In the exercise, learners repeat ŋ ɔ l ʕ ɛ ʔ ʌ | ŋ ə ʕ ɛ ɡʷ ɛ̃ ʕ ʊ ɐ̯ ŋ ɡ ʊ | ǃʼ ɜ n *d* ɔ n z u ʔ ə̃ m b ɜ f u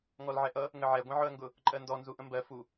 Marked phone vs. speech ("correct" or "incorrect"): correct